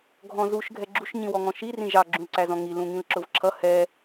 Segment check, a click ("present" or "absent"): present